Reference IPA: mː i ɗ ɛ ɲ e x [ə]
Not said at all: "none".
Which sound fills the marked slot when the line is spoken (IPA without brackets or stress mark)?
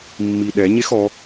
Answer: ɔ